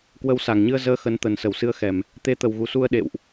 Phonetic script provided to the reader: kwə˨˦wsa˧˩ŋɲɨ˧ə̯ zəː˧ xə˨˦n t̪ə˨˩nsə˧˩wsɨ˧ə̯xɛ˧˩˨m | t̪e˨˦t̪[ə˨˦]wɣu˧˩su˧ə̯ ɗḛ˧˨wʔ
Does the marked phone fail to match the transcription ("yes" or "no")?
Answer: yes